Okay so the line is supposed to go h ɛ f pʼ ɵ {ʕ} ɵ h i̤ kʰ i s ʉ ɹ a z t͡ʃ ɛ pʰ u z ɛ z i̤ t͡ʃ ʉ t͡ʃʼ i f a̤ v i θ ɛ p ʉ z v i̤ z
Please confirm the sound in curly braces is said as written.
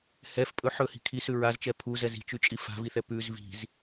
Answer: no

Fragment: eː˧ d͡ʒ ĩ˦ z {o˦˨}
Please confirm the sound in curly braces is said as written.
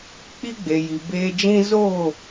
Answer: yes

